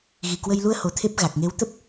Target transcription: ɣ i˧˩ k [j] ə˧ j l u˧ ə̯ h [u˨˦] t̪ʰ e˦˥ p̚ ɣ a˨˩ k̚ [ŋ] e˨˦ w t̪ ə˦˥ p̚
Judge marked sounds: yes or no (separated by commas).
no, no, yes